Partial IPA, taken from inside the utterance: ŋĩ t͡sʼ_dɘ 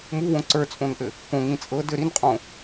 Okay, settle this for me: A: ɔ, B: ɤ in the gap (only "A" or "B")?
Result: B